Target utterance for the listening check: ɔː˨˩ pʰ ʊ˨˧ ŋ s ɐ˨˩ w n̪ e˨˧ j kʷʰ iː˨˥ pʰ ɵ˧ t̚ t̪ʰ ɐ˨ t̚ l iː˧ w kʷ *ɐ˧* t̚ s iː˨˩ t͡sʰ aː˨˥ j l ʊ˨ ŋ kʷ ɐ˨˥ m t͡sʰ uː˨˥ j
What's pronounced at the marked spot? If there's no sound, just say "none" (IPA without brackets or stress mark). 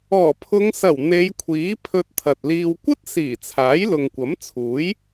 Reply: ɐ˥